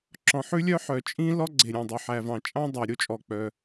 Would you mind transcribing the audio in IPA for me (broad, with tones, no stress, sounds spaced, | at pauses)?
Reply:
ǁ ɔ̃˩ ħ ʉ˥ lʲ œ˥ ħ œ˩ t͡ʃʼ ĩ˥ l ɔ˥ ɡ͡ǀ e˩ ɾʲ æ̃˩ dˤ o˩ ħ æ˩ v ɑ̃˩ t͡ʃʼ ɑ̃˥ dˤ æ˩ ɾʲ o˥ t͡ʃʼ ɔ˩ k͡p œ˩